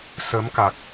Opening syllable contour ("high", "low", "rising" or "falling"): rising